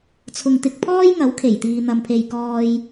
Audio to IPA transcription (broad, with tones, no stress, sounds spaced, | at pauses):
t͡sʰ ʊ˨ ŋ t̪ ɪ˧ k̚ pʰ ɔː˥ j ŋ ɐ˨˥ w kʰ e˨˩ j t̪ iː˨ n̪ ɐ˨ m pʰ e˨ j k ɔː˧ j